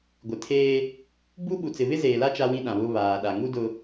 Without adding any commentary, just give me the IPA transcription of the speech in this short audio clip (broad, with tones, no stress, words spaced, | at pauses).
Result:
ɡʷɪ˨tʰeː˦ | buː˦ɓu˨t͡sɪ˨ βɪ˦zeː˨la˦ t͡ʃa˦wĩ˦ɗã˨βʊ˦ βaː˨ɗa˨ ŋu˦dʊ˨